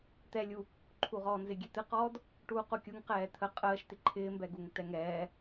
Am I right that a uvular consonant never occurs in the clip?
no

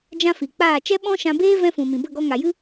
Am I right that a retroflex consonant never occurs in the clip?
yes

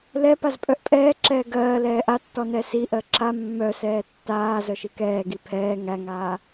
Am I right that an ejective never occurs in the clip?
no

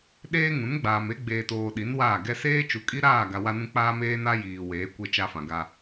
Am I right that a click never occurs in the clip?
yes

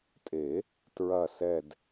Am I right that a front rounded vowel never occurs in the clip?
yes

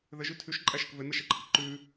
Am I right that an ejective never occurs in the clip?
no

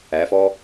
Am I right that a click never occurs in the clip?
yes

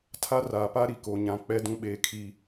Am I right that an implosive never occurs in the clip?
no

